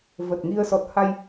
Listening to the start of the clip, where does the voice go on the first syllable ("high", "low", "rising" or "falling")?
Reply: low